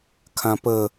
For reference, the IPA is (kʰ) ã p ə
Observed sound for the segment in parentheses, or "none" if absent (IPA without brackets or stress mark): kʰ